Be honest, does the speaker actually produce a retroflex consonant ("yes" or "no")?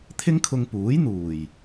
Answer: no